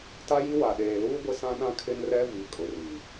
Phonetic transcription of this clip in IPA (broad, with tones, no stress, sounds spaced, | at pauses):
t a˦ j i˦ w a˨ ɗ eː˨ l uː˦ ɡʷ ɪ˦ s ã˦ ɗ ã˦ kʰ ɪ˦ n r ɛ˦ v i˨ kʼ ʊ˨ r i˨